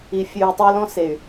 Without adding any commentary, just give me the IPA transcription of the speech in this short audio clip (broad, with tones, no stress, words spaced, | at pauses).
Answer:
i˨fʲʉː˨u̯tˤa˦lɔ̃˦ se˨y̯